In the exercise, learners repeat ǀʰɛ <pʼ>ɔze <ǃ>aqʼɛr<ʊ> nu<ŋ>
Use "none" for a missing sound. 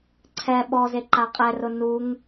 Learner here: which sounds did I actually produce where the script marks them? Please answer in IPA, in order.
ɓ, ǃ, ʊ, ŋ

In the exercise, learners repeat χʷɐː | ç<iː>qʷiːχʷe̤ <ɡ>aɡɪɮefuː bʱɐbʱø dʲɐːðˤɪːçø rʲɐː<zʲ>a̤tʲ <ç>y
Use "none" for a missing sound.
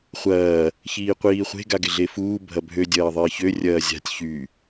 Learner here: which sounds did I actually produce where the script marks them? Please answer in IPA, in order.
iː, ɡ, zʲ, ç

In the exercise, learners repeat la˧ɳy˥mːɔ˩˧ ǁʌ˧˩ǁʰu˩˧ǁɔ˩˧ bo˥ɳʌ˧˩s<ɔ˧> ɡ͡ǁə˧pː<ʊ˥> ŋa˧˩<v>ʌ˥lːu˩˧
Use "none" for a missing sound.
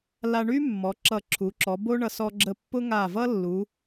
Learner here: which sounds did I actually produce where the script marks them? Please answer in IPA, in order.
ɔ˧, ʊ˥, v

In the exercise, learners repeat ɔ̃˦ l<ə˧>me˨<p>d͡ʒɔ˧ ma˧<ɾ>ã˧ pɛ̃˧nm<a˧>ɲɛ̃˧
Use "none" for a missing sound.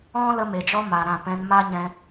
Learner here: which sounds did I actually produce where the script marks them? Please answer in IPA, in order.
ə˧, none, ɾ, a˦

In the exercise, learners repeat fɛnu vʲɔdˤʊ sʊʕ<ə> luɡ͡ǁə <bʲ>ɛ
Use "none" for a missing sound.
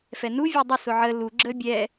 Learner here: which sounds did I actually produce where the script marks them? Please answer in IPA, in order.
ə, bʲ

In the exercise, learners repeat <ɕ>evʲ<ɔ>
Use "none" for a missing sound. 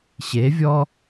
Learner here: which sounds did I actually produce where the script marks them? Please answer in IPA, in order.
ɕ, ɔ

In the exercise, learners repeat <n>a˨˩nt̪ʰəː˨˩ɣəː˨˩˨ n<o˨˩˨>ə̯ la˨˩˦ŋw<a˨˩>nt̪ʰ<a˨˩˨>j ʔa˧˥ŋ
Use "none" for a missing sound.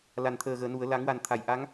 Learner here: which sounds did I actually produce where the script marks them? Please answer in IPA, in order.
l, u˨˩˨, a˨˩, a˨˩˨

